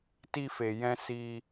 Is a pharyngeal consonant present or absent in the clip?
absent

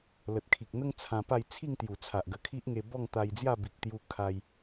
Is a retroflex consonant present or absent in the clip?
absent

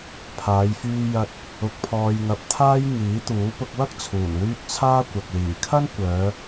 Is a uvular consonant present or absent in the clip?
absent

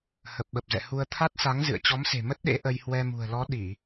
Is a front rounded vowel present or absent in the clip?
absent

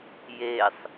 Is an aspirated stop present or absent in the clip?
absent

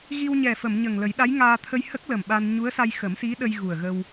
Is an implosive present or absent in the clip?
present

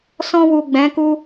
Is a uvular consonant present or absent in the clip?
absent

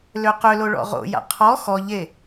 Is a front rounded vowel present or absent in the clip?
present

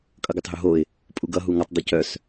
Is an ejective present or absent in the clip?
present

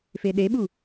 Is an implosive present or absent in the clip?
present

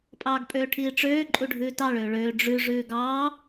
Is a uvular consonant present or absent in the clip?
absent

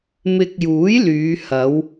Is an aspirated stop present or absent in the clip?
absent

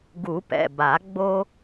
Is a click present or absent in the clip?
absent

